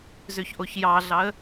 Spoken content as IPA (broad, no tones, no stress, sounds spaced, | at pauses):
z ø ç ʔ o ç j ɑ ɮ ɑ ə̯